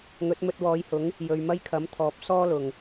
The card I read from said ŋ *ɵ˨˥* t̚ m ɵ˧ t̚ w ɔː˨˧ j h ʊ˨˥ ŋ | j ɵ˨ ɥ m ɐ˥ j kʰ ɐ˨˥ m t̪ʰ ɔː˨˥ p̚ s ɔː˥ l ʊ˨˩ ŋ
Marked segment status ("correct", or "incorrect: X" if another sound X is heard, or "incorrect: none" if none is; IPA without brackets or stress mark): correct